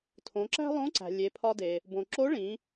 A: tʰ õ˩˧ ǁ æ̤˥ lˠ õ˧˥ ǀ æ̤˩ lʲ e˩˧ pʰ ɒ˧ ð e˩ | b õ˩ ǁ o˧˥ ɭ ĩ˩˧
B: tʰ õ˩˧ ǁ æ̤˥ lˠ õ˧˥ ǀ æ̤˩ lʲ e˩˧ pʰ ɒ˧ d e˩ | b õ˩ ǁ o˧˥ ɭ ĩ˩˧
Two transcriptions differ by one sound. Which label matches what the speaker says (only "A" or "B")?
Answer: B